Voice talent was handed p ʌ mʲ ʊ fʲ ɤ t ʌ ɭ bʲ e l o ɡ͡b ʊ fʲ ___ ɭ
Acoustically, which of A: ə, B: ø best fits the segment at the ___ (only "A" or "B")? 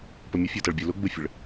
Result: A